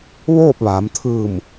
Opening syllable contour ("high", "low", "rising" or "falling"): falling